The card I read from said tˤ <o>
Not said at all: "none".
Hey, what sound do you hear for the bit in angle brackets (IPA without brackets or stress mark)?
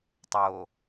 o